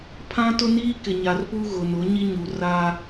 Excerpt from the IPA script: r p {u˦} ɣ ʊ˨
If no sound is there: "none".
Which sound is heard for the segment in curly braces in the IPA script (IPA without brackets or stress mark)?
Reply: u˦